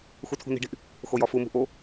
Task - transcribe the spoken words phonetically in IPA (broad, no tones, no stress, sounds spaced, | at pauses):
x u tʰ ṳ n i̤ ɖ i̤ ʔ | x o j ɒ f u m ṳ ʔ o